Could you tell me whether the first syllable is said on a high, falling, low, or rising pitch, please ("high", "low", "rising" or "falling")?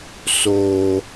high